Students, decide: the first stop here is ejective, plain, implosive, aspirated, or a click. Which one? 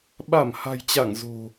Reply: implosive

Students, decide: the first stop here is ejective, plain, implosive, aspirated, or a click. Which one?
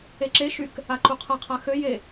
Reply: click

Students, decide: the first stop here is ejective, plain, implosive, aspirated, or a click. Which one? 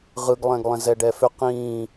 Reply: plain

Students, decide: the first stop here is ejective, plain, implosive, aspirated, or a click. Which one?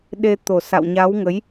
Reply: implosive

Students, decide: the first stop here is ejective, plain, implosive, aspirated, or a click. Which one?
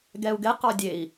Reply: plain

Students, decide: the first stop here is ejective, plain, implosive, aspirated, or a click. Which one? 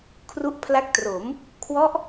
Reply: aspirated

